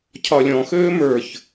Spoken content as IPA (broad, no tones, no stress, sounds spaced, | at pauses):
cʰ ɒ lʲ ɔ̃ x øː m ə˞ ç